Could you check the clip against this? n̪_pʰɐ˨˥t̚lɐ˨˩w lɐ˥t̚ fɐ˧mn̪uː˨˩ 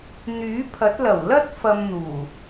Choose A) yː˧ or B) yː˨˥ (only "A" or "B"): B